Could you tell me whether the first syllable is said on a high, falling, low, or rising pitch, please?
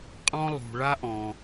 high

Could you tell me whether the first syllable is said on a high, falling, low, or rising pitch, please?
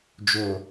low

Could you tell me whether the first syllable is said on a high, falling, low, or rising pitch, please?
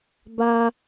high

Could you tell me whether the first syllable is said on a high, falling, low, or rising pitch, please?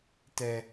high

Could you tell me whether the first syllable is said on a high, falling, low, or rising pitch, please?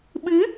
rising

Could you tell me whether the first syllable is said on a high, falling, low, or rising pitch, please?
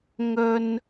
high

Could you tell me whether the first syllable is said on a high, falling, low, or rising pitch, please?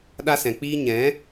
high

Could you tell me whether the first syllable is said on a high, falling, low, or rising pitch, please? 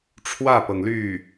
falling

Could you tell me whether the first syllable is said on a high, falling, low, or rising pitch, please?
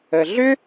low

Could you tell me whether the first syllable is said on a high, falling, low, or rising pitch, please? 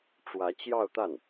rising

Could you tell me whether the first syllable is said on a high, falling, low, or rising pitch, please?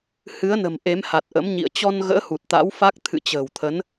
rising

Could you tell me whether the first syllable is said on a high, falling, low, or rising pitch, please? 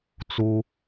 high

